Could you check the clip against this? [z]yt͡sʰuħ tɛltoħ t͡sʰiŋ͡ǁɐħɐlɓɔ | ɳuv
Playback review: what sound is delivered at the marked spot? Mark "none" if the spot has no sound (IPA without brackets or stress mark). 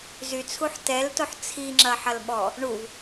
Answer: z